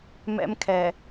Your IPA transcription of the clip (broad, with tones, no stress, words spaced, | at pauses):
mɛ̰˦mkʰɛ˨